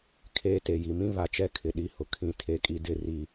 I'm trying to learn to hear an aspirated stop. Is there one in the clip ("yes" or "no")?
yes